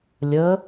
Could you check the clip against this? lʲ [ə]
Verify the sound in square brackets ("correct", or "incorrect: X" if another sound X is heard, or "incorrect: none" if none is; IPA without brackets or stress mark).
correct